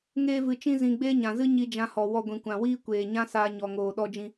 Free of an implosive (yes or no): no